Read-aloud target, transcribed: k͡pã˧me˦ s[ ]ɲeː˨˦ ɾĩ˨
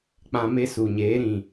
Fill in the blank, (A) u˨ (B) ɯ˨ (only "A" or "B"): A